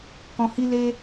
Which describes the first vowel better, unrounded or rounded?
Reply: rounded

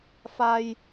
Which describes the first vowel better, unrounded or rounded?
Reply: unrounded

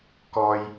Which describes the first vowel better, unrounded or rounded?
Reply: rounded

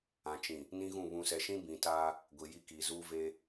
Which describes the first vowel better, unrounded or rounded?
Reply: unrounded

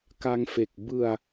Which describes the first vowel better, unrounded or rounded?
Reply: unrounded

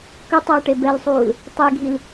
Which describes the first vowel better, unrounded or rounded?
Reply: rounded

